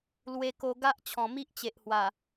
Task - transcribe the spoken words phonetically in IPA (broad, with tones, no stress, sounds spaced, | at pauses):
l w e˧ k o˧ ɡ a˦ ʔ t͡ɕʰ ɔ̃˨˩ m i˦ ʔ t͡ɕ e˨ ʔ h w a˨˩